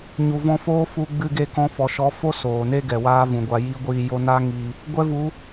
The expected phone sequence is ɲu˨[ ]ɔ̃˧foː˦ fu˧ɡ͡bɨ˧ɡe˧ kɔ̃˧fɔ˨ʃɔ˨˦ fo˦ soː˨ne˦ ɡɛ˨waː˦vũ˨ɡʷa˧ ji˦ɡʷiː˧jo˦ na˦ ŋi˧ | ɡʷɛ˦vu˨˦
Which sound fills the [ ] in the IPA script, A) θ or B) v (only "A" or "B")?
B